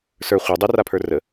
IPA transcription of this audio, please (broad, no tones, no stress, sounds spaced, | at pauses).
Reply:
s ə˞ χʷ ə˞ dˤ ɪ r a pʰ ə˞ r ə